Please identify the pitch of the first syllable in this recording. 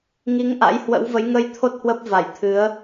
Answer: rising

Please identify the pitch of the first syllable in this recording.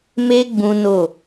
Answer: high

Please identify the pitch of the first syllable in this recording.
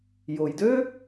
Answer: low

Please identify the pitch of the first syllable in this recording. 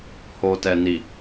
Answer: low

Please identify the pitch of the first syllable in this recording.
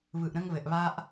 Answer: low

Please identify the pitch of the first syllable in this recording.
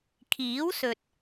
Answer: rising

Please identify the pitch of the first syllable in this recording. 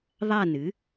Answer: falling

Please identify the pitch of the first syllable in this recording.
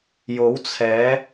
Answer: rising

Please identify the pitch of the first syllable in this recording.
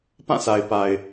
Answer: falling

